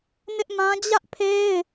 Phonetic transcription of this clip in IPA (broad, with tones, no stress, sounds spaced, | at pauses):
n ɪ˦ ʔ m ã˦ d͡ʑ ä˦ ʔ pʰ e˦ ɪ̯